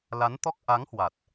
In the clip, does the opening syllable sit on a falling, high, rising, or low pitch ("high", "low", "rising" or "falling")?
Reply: rising